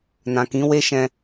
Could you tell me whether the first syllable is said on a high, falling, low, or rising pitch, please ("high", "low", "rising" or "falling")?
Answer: low